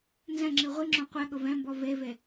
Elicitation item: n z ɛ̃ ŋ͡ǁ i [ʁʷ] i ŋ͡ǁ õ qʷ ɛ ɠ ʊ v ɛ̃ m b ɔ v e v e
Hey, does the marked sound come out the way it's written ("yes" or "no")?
yes